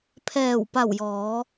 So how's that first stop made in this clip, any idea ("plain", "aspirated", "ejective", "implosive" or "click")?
aspirated